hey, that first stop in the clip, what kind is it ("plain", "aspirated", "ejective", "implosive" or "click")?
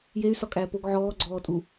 ejective